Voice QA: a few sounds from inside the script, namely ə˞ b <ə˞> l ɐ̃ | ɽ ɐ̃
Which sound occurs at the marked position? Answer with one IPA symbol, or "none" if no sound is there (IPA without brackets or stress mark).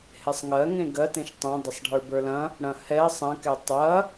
ə˞